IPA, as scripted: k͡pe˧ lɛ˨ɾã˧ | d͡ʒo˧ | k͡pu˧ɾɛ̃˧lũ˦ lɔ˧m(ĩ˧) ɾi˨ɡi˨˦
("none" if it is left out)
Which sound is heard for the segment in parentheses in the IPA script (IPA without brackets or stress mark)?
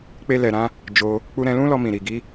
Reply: ĩ˨